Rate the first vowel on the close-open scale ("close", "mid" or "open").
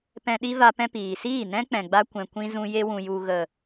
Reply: mid